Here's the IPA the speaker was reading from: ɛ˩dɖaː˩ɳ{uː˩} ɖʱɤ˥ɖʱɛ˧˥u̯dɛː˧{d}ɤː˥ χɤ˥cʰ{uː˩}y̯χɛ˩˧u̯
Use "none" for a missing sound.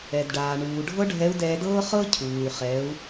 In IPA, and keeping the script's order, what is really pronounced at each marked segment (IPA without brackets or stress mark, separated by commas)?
uː˩, d, uː˩